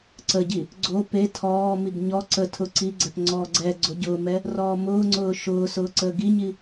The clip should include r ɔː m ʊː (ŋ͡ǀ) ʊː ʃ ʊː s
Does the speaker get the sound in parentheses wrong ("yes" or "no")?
no